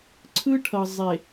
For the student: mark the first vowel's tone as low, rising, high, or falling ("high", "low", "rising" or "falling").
high